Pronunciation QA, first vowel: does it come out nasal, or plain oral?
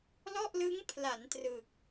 oral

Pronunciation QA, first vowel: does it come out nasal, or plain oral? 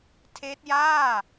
oral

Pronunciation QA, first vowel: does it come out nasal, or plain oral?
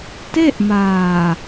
oral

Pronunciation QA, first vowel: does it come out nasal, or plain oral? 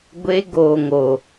oral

